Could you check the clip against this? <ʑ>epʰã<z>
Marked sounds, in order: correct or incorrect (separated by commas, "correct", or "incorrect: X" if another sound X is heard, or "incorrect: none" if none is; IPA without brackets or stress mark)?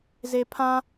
incorrect: z, incorrect: none